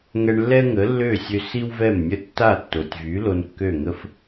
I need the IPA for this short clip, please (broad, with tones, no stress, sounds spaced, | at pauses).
ŋ ɛ˧ ɳ lː ɛ˥ ŋ ə˩˥ lː ø˥˩ sʲ ø˧ s i˥ w v ɛ˥˩ m nʲ ə˥˩ tː a˥˩ tː o˩ tʲ v y˩˥ l o˧ n kː ø˥˩ ŋ ə˥ f